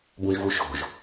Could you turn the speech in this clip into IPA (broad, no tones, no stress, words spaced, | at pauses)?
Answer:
bũʒvuʃo̤ʒ